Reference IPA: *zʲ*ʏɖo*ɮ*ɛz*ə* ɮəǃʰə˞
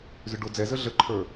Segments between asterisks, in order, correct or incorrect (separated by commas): incorrect, incorrect, correct